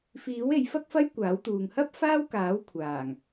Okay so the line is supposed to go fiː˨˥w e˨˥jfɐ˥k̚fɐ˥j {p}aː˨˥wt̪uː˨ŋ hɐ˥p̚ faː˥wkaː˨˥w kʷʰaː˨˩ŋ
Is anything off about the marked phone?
yes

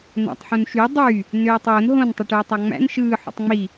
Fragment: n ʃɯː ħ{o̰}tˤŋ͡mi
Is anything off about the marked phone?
no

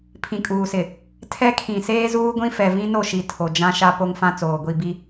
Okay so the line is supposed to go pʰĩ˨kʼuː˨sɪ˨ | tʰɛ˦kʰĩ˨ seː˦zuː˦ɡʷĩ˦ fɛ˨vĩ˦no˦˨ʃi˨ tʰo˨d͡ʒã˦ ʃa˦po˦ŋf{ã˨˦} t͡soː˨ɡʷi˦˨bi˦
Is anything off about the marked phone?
yes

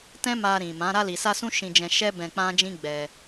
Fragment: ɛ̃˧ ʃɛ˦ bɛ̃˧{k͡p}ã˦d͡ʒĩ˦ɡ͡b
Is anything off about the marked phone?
no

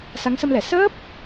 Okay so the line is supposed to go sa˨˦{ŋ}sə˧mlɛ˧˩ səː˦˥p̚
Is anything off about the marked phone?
no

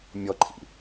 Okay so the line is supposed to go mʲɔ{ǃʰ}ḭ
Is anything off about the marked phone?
no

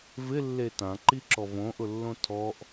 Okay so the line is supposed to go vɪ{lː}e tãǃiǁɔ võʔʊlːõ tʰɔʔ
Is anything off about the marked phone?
no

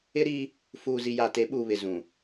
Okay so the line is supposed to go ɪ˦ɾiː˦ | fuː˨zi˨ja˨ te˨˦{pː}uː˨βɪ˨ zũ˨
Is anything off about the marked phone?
yes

